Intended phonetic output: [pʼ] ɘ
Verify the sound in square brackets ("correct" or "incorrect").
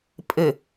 correct